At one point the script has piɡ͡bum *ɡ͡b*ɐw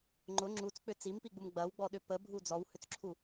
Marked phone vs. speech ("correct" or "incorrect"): correct